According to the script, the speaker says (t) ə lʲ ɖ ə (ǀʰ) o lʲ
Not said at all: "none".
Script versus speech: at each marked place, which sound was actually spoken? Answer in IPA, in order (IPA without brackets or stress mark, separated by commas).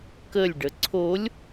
k, ǀʰ